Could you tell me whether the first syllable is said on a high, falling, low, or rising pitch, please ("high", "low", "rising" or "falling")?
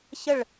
falling